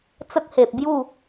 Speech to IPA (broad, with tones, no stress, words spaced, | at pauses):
t͡sə˦k̚he˨p̚ bju˥˧